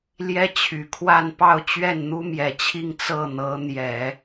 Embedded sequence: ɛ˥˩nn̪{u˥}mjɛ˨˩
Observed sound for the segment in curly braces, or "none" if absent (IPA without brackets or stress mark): u˥